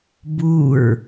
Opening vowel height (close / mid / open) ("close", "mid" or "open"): close